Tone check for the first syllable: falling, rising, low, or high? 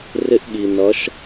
rising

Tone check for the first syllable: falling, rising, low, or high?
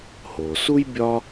low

